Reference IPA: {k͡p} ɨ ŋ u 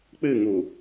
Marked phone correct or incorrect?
correct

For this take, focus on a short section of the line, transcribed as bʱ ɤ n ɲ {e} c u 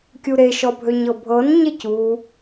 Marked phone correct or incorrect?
correct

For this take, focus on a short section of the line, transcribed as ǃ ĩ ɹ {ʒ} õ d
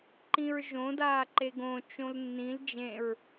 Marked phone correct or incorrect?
correct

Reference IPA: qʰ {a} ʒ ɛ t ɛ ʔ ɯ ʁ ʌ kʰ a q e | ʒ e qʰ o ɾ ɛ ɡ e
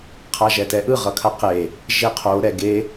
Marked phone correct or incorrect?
correct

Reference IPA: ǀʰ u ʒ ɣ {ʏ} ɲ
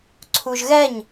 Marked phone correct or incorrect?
incorrect: ɛ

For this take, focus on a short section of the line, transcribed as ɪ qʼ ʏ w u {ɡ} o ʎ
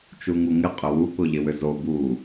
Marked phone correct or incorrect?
incorrect: k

